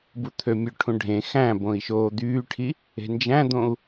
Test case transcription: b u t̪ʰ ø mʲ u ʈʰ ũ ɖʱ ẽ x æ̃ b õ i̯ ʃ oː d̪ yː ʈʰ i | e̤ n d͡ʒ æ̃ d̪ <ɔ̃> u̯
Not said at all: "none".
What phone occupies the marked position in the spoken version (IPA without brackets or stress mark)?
õ